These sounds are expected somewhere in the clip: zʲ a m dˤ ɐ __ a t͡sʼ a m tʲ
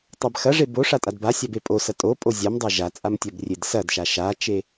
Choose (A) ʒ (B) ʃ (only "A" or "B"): A